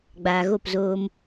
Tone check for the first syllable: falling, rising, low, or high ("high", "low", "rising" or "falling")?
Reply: low